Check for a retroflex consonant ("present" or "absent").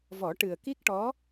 present